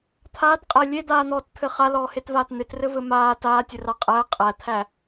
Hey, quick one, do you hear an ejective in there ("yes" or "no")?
yes